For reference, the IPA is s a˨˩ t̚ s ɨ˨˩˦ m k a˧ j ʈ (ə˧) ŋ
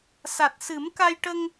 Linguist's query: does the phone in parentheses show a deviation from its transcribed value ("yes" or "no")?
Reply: no